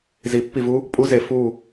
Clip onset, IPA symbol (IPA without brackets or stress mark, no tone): z